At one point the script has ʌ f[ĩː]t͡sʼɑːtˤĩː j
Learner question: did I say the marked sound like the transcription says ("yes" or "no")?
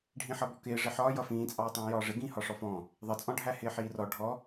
yes